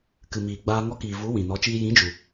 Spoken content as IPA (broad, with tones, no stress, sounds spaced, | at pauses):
k ɨ˨ m iː˨ ɡ͡b aː˧ ŋ ɔ˧ k iː˨ v u˨˦ w ĩ˨ n ɔ˨˦ t͡ʃ iː˧ j ĩ˨˦ d͡ʒ u˨